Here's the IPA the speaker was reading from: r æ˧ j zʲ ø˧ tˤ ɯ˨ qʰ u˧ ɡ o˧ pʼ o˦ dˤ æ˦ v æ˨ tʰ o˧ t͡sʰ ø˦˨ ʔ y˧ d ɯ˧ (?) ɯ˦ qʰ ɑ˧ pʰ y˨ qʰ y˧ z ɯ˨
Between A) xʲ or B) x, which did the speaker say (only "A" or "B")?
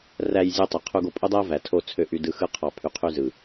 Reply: B